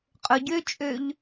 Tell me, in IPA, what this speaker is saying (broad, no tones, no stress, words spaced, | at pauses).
qʼʊ ɟøt͡ʃʼøʎ